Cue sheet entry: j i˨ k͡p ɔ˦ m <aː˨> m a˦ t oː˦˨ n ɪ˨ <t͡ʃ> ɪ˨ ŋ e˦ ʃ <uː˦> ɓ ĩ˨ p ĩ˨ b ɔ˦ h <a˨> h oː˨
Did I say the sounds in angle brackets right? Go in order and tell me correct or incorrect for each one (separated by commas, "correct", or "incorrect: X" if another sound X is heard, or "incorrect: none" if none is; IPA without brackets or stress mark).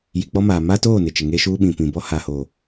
correct, correct, correct, correct